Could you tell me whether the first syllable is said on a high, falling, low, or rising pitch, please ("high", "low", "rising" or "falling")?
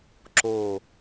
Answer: falling